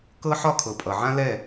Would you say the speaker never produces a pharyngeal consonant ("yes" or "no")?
no